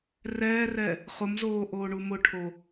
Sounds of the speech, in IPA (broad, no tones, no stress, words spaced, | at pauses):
rɛːrɛ | χʊmzoː ʔoːɳumʊʈʰo